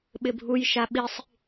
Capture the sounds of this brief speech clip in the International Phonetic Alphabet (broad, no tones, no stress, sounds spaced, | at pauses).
ɓ ɪ bʱ u j ʃ a ɓ i sˤ